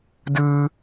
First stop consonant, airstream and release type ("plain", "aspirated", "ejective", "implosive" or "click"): plain